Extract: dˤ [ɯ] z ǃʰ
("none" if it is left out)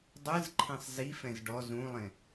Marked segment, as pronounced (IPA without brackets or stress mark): ɯ